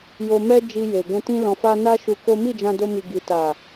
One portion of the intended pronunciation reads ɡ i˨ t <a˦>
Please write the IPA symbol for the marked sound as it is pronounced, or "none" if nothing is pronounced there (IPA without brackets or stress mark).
a˨